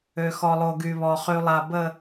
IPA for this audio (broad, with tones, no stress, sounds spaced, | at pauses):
ø˨ x ɔ˨ lˠ o˨ ɡ y˨ β ɔ˨ χ y˨ lˠ a˨ b ə˨